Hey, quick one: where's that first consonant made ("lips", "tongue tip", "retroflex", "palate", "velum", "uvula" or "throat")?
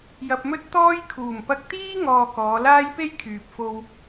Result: palate